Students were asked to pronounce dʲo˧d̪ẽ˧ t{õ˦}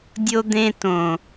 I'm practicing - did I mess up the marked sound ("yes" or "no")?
yes